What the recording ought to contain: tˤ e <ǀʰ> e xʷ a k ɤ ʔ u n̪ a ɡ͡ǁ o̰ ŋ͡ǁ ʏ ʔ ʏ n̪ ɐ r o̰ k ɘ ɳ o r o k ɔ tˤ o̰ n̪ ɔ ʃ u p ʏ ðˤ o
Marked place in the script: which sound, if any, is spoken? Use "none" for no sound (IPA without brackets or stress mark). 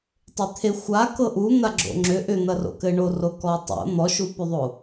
t̪ʰ